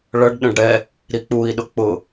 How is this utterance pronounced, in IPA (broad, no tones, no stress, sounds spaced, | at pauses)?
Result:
ɭ ʌ ɖ ɗ ə̃ ɖ ɽ ɛ | ɾ i k͡p u i̯ ɗ ʊ k͡p ʊ